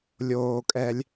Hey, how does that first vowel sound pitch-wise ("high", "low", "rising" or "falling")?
low